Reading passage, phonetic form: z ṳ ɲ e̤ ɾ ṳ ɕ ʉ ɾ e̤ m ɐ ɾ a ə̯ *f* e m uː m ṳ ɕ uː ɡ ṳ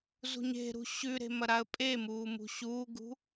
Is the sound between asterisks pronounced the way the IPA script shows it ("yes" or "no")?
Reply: no